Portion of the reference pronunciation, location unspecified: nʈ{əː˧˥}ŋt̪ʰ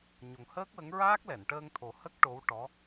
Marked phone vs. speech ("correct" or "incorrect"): incorrect